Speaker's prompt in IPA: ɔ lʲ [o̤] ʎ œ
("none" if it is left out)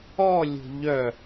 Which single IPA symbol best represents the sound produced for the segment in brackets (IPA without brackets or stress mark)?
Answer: o̤